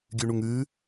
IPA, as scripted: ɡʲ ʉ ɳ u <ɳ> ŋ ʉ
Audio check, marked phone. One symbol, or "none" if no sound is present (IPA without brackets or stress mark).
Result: none